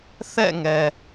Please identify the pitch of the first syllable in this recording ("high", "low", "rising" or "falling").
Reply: falling